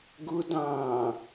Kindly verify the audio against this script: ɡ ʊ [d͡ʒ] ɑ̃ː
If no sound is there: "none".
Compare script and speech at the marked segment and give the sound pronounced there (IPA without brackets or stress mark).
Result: d